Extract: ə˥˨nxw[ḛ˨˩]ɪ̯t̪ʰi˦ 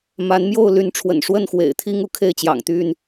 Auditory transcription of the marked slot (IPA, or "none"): ḛ˨˩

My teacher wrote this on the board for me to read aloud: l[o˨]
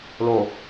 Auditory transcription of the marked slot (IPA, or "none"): o˨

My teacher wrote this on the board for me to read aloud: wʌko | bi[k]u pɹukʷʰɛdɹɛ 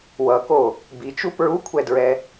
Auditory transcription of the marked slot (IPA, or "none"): t͡ʃ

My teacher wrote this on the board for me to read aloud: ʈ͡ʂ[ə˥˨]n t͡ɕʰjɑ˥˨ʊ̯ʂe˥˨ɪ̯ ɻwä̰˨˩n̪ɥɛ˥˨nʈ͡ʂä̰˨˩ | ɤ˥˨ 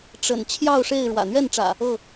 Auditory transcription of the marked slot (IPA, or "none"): ə̰˨˩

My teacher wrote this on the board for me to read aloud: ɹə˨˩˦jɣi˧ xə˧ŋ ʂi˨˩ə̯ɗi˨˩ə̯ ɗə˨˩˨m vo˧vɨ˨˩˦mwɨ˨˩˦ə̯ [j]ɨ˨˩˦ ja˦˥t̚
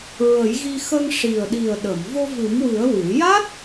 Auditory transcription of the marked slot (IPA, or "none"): w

